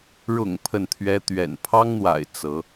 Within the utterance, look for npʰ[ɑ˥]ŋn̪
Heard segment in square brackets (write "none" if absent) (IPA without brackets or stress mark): ɑ˥